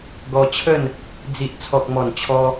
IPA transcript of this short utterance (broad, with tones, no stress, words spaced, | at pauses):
ɡɔ˧t͡ɕʰə˥˧n | d͡zi˨ʔ t͡sʰɔ˨k̚mɔ˨˩n t͡ɕʰɔ˧